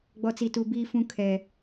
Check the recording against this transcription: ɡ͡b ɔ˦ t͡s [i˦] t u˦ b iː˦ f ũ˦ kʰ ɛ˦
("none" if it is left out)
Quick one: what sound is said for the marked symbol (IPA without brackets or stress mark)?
i˦